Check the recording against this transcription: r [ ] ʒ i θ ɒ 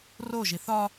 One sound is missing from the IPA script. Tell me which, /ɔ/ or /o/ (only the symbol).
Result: o